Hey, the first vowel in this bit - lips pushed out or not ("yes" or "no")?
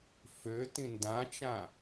yes